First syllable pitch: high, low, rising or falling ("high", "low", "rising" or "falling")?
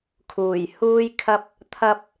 low